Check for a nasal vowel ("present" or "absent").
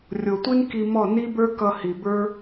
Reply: absent